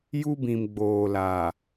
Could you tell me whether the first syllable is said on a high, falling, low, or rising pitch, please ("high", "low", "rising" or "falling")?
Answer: high